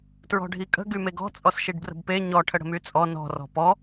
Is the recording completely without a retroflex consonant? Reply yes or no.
no